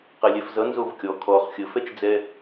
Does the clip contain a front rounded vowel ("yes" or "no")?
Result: no